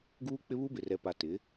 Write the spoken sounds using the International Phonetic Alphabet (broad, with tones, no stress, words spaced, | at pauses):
ɡuː˦k͡pɪ˦βu˦ bɪ˨rɛ˨pa˨ tɪ˨˦